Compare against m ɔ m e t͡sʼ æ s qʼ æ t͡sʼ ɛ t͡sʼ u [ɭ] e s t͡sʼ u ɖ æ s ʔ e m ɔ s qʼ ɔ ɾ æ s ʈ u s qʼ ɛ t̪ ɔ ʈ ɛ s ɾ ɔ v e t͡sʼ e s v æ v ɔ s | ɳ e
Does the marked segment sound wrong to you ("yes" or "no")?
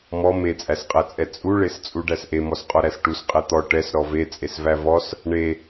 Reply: no